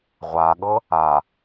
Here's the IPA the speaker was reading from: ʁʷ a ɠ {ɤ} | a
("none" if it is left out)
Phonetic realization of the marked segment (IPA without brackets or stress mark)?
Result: ɤ